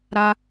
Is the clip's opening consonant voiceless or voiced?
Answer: voiced